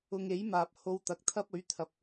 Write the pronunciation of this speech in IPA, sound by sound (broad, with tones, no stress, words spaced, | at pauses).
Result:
ʊ˧ŋe˨˥jmaː˨p̚ ho˧wt̪ɐ˨k̚t̪ʰɐ˥p̚ɵ˨˥ɥ t̪ʰɐ˨p̚